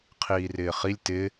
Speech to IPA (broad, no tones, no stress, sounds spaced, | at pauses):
qʰ iː r ɪː χ i lʲ t ɪ